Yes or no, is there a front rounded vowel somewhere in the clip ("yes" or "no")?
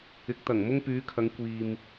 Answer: yes